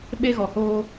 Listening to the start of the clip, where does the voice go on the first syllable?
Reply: high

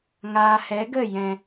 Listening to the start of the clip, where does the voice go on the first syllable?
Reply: low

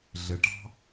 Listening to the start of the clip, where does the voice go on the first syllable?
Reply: low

